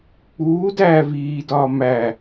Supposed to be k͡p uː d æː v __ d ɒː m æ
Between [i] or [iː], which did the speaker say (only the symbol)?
iː